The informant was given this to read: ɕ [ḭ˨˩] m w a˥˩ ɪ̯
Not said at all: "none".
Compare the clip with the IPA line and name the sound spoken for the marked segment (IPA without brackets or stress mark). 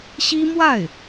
i˥